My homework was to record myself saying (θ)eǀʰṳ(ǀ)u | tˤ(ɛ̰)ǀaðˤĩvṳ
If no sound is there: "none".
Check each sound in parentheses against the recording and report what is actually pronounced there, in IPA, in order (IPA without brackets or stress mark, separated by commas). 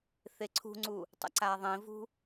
θ, ŋ͡ǀ, ɛ̰